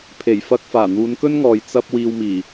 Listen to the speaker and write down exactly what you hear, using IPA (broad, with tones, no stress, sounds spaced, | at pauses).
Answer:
pʰ e˨˩ j f ɐ˧ k̚ f aː˨˩ n̪ uː˨˧ n k ɵ˥ n ŋ ɔː˨ j t͡s ɐ˧ p̚ w iː˧ w m iː˨˩